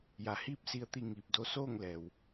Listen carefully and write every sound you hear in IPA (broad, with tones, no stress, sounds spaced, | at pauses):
j a˩˧ h iː˥˨ p̚ s i˧ ə̯ t̪ i˧ ŋ iː˧˩ p̚ d o˧˥ s oː˥˨ ŋ l ɛː˩ w